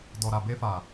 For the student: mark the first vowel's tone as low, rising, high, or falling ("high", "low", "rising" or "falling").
low